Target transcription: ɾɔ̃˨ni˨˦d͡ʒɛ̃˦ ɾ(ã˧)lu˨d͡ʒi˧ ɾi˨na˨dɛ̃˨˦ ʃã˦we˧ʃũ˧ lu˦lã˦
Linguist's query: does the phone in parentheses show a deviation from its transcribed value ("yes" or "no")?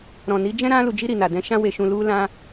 no